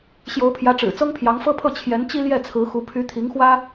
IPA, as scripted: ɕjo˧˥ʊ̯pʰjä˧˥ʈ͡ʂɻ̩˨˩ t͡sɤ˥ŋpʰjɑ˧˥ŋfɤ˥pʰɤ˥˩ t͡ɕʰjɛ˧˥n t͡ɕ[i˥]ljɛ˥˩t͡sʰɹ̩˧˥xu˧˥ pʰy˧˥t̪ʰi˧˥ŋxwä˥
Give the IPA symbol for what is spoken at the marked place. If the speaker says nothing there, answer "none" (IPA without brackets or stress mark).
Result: i˥